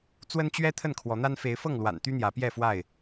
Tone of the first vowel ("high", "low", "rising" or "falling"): high